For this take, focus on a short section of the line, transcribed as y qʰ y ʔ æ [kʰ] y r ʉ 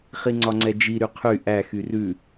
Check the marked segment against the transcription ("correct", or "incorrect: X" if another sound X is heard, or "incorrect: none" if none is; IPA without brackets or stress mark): incorrect: x